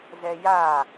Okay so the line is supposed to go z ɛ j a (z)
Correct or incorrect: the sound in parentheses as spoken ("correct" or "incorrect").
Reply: incorrect